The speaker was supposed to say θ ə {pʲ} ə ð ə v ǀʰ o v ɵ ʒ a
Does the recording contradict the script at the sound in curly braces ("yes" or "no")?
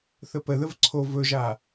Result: yes